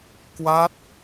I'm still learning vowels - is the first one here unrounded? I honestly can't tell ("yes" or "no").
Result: yes